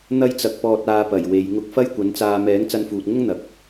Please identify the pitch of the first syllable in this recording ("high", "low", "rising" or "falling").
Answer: high